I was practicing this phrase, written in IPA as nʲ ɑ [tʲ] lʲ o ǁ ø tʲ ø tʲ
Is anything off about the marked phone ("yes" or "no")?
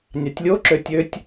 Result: no